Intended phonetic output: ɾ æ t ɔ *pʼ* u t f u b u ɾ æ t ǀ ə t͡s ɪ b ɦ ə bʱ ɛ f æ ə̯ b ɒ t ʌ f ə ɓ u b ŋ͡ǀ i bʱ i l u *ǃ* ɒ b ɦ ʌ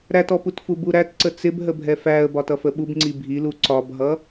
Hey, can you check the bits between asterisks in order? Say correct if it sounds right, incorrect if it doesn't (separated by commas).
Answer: incorrect, incorrect